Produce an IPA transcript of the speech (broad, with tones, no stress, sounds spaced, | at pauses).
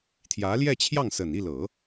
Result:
t̪ʰ j ä˧˥ l j ɛ˥˧ t͡ɕʰ j ɑ˥˩ ŋ s ə˨˩ n i˥˩ l ɤ˨˩˦